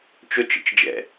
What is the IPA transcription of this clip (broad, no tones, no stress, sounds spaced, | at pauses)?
t͡ʃ o t͡ʃ ə̰ t͡ʃ d͡ʒ ɛ̰